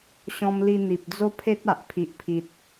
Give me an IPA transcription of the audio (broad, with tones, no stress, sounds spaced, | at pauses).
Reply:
ɕ ɔ̃˧ m l i˧ n̪ i˨ p̚ d͡z o˦ pʰ e˦ t̚ a˨ ʔ pʰ i˨ ʔ pʰ i˨ t̚